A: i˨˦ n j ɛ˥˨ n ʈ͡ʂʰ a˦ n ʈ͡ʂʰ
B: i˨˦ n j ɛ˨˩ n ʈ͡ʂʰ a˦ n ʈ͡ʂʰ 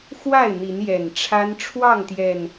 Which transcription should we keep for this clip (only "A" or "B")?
B